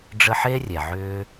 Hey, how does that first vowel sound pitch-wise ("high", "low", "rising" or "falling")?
high